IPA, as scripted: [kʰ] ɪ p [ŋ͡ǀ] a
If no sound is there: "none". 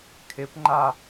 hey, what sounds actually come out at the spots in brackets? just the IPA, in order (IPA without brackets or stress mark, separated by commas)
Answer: kʰ, ŋ͡ǃ